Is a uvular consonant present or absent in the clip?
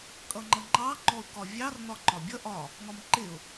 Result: absent